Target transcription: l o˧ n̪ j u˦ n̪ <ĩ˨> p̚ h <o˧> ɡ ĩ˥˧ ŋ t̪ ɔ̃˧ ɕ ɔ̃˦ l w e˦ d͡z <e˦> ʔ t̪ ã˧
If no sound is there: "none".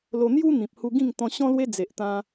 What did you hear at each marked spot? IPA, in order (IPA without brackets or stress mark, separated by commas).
ĩ˨, u˧, e˨